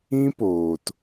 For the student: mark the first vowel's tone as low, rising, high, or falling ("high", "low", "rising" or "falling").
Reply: high